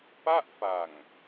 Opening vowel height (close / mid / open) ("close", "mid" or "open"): open